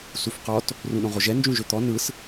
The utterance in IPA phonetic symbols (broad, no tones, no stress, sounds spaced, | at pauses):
s u f q ɔ t | r ũ ɗ õ ʁ o ʒ ɛ n d͡ʒ ũ ʒ ø t̪ ɔ n ɯ s